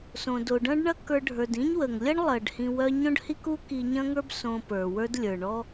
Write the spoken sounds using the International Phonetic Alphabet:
sõ˩ do˩ɖɐ̃˥ɖɳɐ˥kə˞˧ ɖʱə˞˩dĩ˥ɲ wə˩ŋlʲɐ˥ɳ lˠɐ˩ɖhĩ˧wœ˥ ɲõ˥ɖhi˥ku˥ ki˧ɲɐ̃˥ŋə˞˥b sõ˧ pə˞˩wə˞˥d lʲə˞˩ɳɔ˥

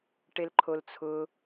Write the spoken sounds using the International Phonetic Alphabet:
ʈelǃʰolt͡sʰʊ

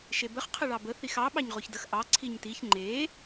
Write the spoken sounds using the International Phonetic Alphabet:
ʃebəχ qʰəɭɑbə θixɑ ɓɑɲʁoçdəx ʔɑ ǀʰiɲtiç ŋ͡ǃe

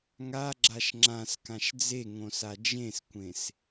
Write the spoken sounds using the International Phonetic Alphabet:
ŋaɡ͡ǁaʃ ŋ͡ǁãskãʃ d͡zeŋõsa d͡ʒẽskʷẽs

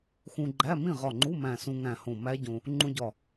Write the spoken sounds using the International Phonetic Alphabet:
xũ˧ɡ͡ǃæ˧˥˧ mĩ˥˩ʁɒ˧˩ŋ͡ǃu˧˥˧ mæ̃˧˩sũ˧ŋæ̃˧˩hõ˧˩ mæ˦˥ɟõ˧ | ŋ͡ǃũ˧ɟɒ˧˩

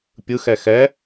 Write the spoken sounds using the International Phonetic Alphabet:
pʲɯxɛ xɛ

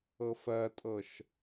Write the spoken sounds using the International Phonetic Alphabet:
ɤfɜtʼɤʃ

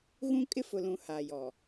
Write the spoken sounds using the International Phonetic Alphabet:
ɣũ˦kʼɪ˦fʊ˨lũ˨ haː˨jɔ˨

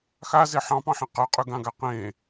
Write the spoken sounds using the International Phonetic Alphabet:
xaze ħɑ̃pɑ̃ħĩ qɤqʼyɡãɡa qẽ

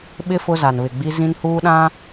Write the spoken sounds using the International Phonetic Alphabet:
ɓɪ˦ fʊ˦za˨nβɪ˨ɡ͡bi˦ zĩ˦nhuː˦ɗã˦

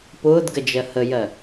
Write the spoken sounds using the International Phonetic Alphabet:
pʊːdɡəd͡ʒɜ həjɜ

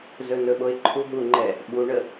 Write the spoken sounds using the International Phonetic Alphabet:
zɵnɵɓoɪ̯ ǃʰuɦuŋ͡ǃɛ | ɓuɳə

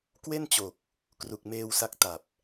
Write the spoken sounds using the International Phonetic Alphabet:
kwe˥˩nt͡ɕo˨˩k̚ | kru˨˩k̚meː˧wsa˦˥k̚ ta˨˩p̚

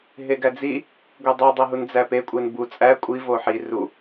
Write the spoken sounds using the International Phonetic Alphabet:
ɦeɡæd͡zi | ɡʷedˤo dˤeɦund͡zæpe kʷʼenbu t͡sʼæ kʷʼi voħi ru

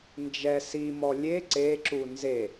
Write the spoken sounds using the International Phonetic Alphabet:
nd͡ʒɛ simɔ lʲe ǀeǁu nze

